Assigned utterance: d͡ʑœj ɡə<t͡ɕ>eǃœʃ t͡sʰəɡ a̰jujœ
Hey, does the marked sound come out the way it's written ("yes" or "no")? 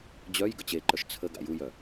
yes